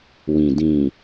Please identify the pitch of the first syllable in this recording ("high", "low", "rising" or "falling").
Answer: low